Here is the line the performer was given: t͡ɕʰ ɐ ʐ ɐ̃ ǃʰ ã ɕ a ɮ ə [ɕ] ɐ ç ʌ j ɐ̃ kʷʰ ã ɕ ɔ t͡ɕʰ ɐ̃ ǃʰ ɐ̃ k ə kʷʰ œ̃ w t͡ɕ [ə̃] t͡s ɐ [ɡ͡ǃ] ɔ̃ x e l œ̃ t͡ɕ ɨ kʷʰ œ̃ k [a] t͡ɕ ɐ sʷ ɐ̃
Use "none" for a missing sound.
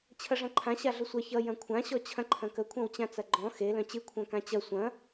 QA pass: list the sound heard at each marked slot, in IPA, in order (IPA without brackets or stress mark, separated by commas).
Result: sʷ, ã, ɡ͡ǃ, ã